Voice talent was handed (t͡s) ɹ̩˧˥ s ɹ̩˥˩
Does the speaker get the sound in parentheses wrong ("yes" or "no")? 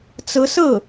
no